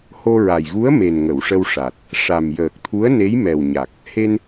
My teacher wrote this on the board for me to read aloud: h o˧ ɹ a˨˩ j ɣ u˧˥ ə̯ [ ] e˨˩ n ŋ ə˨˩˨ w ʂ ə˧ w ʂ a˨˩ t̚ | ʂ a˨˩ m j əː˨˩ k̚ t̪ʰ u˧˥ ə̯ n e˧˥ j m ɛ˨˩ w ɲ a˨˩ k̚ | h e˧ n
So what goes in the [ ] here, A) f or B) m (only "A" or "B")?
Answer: B